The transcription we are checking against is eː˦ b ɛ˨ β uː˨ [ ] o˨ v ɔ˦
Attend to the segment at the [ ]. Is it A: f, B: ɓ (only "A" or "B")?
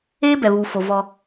A